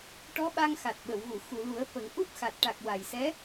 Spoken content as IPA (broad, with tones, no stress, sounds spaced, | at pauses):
ʈ ɔ˧˥ ɓ a˧ ŋ x a˨˩ t̚ ɓ ə˨˩˨ w ɣ u˨˩˨ x u˨˩˨ l u˨˩˦ ə̯ f ə˨˩˦ ŋ ʔ u˦˥ p̚ x a˨˩ t̚ ʈ a˨˩ k̚ w a˨˩ j s ɛ˧˥